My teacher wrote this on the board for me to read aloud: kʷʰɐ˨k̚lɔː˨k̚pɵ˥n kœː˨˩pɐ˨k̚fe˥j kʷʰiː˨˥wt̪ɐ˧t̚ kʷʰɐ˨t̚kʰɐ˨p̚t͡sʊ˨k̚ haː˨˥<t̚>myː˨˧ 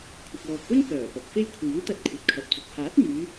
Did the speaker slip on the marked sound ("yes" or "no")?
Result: no